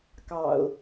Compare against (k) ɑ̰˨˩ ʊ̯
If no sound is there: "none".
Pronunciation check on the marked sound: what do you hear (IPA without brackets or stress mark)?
k